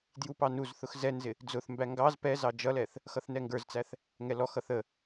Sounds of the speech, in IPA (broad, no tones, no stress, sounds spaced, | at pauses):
d j u p ɑ n u z θ ʊ x z ɛ n z ɪ | d͡z ʊ θ m b æ ŋ ɡ ɑ z p ɛ z ɑ d͡ʒ ʌ l ɛ θ | x ʌ θ n ɛ ŋ ɡ ə˞ z t͡s æ θ | ŋ ɛ l ɔ x ʌ θ ə